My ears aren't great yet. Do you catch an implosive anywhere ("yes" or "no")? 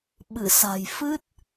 yes